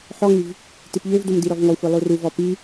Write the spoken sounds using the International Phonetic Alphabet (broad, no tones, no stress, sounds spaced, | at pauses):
ħ ɔ ŋ y v | t i p ʎ ø v d u m d i ɾ ɔ v ŋ ɔ xʷ e lˠ u r u v ɔ p i